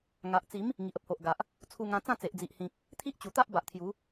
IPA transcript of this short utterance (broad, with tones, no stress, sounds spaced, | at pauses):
ŋ a˨ ʔ t͡s i˨˦ m | ŋ i˨ ʔ ə˦ p̚ h o˨ ʔ ɡ a˨ ʔ | t͡sʰ u˧ ŋ ã˧ t͡s ã˥˧ t͡s e˨ ʔ d͡z i˨ ʔ h ĩ˨ k̚ | t̪ʰ i˦ ʔ t͡ɕ u˨˩ t̪ a˦ ʔ b a˨ ʔ t̪ʰ j u˨˦